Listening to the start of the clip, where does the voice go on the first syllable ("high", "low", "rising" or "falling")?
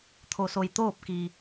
low